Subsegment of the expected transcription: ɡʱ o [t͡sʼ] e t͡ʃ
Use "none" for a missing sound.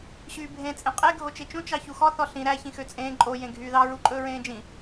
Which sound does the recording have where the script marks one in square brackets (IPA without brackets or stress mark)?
t͡ʃ